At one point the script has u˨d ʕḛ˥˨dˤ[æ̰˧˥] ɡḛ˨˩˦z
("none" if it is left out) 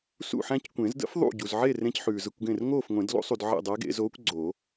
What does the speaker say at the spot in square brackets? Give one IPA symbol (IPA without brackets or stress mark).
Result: æ˧˥